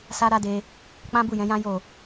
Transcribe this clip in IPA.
s a˦ ɾ a˦ d e˧ | k͡p ã˦ b u˦˨ j ɛ̃˨˦ j ã˦ j o˦˨

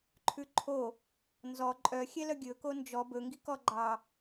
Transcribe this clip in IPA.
ǃʰ ʉ ǃʰ o | n z ɔ ǃʼ œ xʲ ɛ l œ ɡʲ ɵ k o n d͡ʒ ɔ b ɵ ŋ ɡ i k ɔ ɡ͡ǃ ɑ

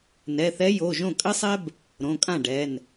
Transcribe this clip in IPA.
n ɛ˩˧˩ θ ɛ˧˥ j o˩˧˩ ʒ õ˥˩ kʼ ɘ˥ sˤ ɛ˥ b | ɾ õ˩˧˩ kʼ ã˥˩ ɖ ɛ˩˧˩ n

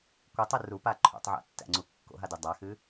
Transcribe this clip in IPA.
kʷ ɯ tˤ ɯ r u p a ǃʰ o̰ tˤ ʕ æ̰ tː æ̰ ŋ͡ǀ u kː o̰ ɦ a d ɨ dˤ a x ɨ

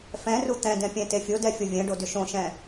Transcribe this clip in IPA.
f ɛ̃ r u t̪ ɛ̃ d ɛ̃ pʲ ɛ̃ t e fʲ o d ɛ fʲ o vʲ ɛ̃ ɖ o d ʏ ʃ õ ʃ ɛ̃

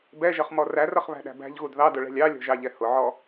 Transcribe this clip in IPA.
b ɛ ʒ ʌ χ m ɔ r æ r ʌ χ β æ̤ ɗ æ̤ b æ̤ ʎ ɣ u d ð ɑ d ʊ ɭ ɛ̤ lʲ ɑ lʲ ɔ̤ ʒ ɑ ʎ ɛ h ʊ ʕ ɔ

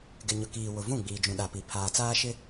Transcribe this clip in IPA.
ɡ ɪ˨ ɲ ʊ˨ k iː˨ w ʊ˨ v ũ˦˨ ɡ͡b iː˨ d͡ʒ ũ˨ ɗ a˨ p i˨ pʰ aː˨ t͡s aː˦ ʃ ɪ˦

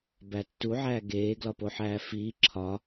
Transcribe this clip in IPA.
b æ tː u ʕ æː ɡ eː ɡ l ɒ p o ħ æː f iː ǁʰ ɒ

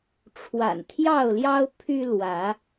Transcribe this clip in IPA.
ʈ͡ʂʰ w a̰˨˩ n t̪ʰ j ɑ˥˨ ʊ̯ l j ɑ˦ ʊ̯ pʰ y˦ l w ä˨˦

